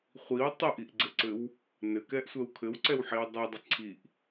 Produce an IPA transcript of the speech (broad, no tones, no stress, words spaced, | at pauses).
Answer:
χʷiw tˤəʔiʔɡ͡ǀɘǀɘw | nɘkɛʔsʷɛw kʰɘwǀɛwħiw dˤidˤɘ ǀʰiʔ